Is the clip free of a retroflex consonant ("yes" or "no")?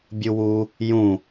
yes